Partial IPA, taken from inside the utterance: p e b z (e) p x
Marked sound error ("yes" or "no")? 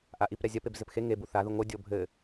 yes